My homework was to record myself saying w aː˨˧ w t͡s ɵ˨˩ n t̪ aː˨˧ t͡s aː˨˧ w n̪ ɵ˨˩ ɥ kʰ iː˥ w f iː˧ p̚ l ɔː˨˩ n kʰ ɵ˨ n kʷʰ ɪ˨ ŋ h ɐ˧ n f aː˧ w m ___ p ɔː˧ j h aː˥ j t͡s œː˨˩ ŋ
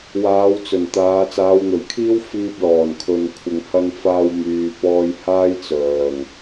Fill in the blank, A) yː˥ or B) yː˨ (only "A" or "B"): B